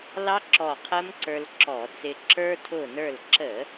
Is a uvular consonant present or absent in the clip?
present